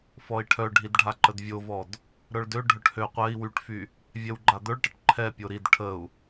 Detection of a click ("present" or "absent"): present